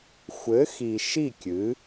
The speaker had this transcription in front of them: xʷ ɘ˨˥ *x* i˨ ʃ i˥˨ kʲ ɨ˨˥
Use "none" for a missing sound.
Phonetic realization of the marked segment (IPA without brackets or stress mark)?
x